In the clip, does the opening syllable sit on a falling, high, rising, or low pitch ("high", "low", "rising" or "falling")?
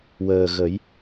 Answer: low